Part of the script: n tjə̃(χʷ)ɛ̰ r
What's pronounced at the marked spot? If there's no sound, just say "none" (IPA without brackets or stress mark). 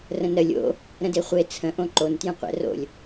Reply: qʷ